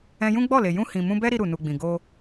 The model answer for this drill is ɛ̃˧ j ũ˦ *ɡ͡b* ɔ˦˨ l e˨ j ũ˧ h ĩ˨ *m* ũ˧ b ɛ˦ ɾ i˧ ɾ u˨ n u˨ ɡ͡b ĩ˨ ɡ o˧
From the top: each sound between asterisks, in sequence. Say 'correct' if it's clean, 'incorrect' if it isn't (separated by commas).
correct, correct